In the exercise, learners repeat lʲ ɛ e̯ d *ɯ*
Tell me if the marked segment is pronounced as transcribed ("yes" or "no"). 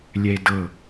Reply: no